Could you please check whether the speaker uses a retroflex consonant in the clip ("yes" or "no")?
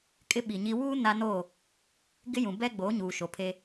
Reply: no